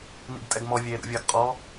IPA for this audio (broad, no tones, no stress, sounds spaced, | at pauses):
n ḭ ɡ tʼ ɛ ɡ m ɔ vʲ eː ɾ ṵ vʲ ɐː ɡ qʼ ɔ